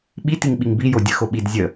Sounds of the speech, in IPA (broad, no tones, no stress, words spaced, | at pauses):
ɓitiŋɓiŋ bijo dʲəxo ɓid zʲə